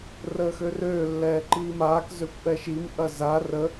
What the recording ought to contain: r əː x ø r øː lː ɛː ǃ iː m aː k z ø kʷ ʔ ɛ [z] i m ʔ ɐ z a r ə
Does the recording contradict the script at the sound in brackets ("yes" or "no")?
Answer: yes